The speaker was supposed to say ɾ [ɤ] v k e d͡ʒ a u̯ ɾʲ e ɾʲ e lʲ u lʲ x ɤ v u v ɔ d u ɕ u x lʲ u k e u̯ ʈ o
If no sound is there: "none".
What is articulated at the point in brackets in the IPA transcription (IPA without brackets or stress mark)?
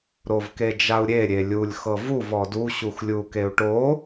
o